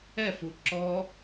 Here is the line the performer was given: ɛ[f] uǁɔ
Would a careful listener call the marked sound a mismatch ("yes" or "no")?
no